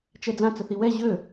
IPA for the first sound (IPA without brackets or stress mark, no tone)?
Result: t͡ʃ